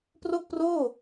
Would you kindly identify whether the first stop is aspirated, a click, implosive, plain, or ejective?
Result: plain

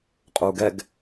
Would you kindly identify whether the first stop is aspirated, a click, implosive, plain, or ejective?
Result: ejective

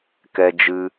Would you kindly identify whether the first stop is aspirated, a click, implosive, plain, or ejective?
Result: plain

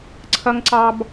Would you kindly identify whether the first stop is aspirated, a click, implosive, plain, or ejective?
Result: click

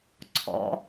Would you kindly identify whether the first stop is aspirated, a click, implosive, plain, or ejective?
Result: click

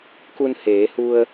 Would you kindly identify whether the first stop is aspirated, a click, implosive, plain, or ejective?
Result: plain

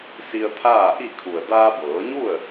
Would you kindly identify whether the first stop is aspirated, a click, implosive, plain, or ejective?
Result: aspirated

